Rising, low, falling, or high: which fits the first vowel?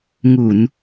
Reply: low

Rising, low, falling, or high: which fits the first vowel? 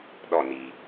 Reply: falling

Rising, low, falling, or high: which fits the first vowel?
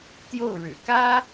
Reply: falling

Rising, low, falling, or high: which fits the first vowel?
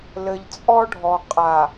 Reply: low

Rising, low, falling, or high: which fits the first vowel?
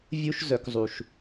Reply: high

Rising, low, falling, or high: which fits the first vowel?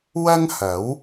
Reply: high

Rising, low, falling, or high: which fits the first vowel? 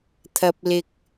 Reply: high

